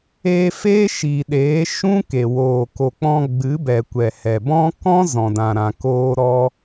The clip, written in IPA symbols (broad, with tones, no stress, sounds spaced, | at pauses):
eː˧ f eː˦ ʃ iː˨ ɗ eː˨˦ ʃ ũ˦ k e˨ w oː˨ k o˨ k͡p ɔ̃˧ ɡ͡b ɨ˨˦ b ɛ˨ kʷ ɛ˨ h ɛ˨ b ɔ̃˦ k ɔ̃˦ z ɔ̃˨ d ã˨ ɾ ã˨ k oː˦ ɾ ɔ˦